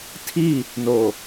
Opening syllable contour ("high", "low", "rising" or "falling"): falling